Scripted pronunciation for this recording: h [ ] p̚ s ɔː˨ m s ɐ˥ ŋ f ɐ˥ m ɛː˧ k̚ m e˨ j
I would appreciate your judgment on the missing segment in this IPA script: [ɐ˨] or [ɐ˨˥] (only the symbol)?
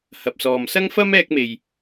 ɐ˨